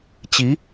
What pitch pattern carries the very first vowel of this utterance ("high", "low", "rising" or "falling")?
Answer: rising